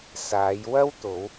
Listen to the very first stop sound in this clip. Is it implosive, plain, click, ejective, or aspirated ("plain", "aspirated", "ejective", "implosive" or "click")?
plain